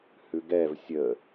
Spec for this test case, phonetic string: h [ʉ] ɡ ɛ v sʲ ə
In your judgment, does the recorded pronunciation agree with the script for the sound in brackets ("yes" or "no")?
yes